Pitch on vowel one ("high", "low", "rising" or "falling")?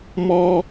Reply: high